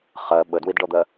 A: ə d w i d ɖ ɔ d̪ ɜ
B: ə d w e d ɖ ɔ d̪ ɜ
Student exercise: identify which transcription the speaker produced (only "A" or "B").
A